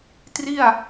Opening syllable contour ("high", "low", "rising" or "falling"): falling